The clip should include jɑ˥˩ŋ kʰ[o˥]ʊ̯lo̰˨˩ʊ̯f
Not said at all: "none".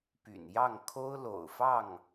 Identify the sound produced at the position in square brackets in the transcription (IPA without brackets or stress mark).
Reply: o˥